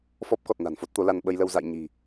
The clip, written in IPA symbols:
f ɔ˦˥ p̚ k ɔ˨˩ t̚ n a̤˨˩ n f o˦˥ t̚ t̪ o˨˦ l a˧ n ɓ ə˧ j l ə˧ w z a̰˧˨ j ɲ i̤˨˩

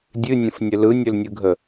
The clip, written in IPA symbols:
dʲ ɨ nʲ ə̃ f nʲ ə l ɯ nʲ ɵ l nʲ ɯ ɡʱ ə

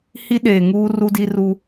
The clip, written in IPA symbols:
h i˦ ɗ eː˨ ŋ uː˦ r u˦ d i˦ r u˦

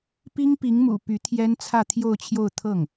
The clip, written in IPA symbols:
p i˥ ŋ p i˧˥ ŋ m ṵ˨˩ p y˧˥ t̪ʰ j ɛ˥ n t͡sʰ ä˥˧ t̪ʰ j o˥˧ ʊ̯ t͡ɕʰ j o˥˧ ʊ̯ t̪ʰ ɤ˥˩ ŋ

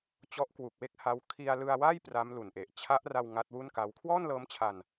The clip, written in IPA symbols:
t͡ɕ ɔ˦˥ ʔ k w u˨˩ k̚ w e˥˩ k̚ h a˦˥ w kʰ i˧ a̯ l ɯ˧ a̯ w a˥˩ j p r a˦˥ m l u˨˩ n ʔ e˨˩ ʔ t͡ɕʰ a˦˥ ʔ r a˧ w ŋ a˦˥ t̚ w u˥˩ n k a˦˥ w kʰ w ɔː˥˩ n l ɤː˦˥ m t͡ɕʰ a˧ n

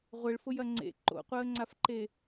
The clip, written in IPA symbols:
ʁʷ ɘ ɭ f ʊ j ɐ ŋ͡ǀ ḛ ǃ o̰ qʷ əː ŋ͡ǀ a f ǃ e

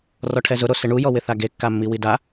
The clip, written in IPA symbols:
r ɔ ʈʰ ɛ z ʊ ɾ o s ɪ ɳ u j ɔ w ɪ θ a ɡ e kː a mː i w i d a

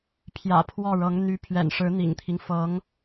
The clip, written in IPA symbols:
pʰ j ä̰˨˩ pʰ w ɔ˥˩ ɻ ɤ˧˥ ŋ n̪ y˧˥ pʰ ɥ ɛ̰˨˩ n ʂ ɻ̩˧˥ n̪ ḭ˨˩ ŋ t̪ʰ i˦ ŋ f ɤ˧˥ ŋ

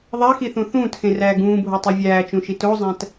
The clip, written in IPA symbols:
ðˤ æ x i θ ũ θ ũː t x ẽ r æː ɡ ũː bʱ o tˤ o vʲ æː t͡ʃ ũ ʃ i t o zˤ æ̃ t

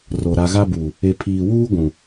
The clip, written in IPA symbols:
r o˨ ɾ a˨ ɣ a˦ b uː˨ | e˨ pʰ iː˨ w uː˦ ɡʷ ũ˨

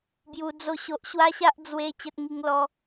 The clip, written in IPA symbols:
b j u˦ d͡z o˥˧ ɕ o˦ ʔ ɕ w a˦ ɕ a˦ ʔ d͡z w e˦ t͡ɕ ə˦ t̚ ŋ i˦ ŋ l ɔ˦

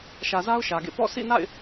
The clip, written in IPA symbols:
ʃ ä˨ z a˦ ʊ̯ ʃ ä˨ ɡ ḛ˦˨ p ɔ̰˦˨ sʰ ḭ˦˨ n a̰˦˨ ɪ̯

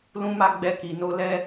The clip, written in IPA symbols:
l ũ˦ m a˦ ɡ͡b ɛ˧ k i˨ n o˧ l ɛ˦

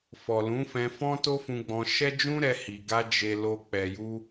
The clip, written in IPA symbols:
f ɔ˨ l ũ˨˦ f ɛ̃˧ f ɔ̃˦ t o˦ f ũ˧ ɡ͡b ɔ̃˧ ʃ ɛ˦ d͡ʒ ũ˦ ɾ ɛ˧ h i˨ ɡ a˧ d͡ʒ e˨ l o˨ k͡p ɛ˨ j u˧

